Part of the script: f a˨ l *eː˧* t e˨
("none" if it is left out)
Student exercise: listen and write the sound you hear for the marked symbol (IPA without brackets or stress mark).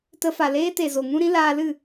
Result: eː˦